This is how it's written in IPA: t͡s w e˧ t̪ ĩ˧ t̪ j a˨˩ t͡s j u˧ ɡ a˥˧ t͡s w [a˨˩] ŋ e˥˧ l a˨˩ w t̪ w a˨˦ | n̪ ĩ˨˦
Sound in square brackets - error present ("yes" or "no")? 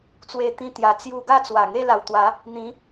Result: no